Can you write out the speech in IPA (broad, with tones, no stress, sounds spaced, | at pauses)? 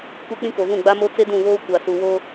kʷ e˦ k͡p ĩ˦ k o˨ v ũ˦˨ ɡ͡b a˦ m o˦ t͡s e˦ d ũ˦˨ β oː˦ kʷ a˨ s u˨ w o˦